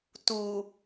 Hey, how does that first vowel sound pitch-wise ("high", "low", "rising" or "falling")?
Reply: low